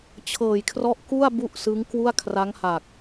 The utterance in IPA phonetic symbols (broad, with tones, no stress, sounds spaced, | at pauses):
t͡ɕʰ ɤː˨˩ j kʰ r ɔ˦˥ ʔ k u˥˩ a̯ b u˥˩ ʔ s ɯ˦˥ ŋ k w u˥˩ a̯ kʰ r a˦˥ ŋ h a˨˩ k̚